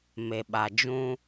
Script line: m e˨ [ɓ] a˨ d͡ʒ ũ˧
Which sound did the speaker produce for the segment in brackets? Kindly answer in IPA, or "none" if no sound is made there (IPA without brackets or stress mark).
ɓ